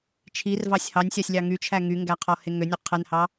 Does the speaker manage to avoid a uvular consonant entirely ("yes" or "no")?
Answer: no